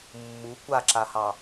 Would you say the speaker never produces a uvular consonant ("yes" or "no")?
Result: yes